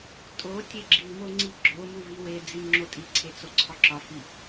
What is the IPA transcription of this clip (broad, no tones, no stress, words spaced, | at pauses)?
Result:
tʼo tʲeɡ͡ǁimo ŋ͡ǀiɡ͡ǁomu viwed͡zi ŋ͡ǁotʼiǀʰe t͡soǀʰɒǁɒfi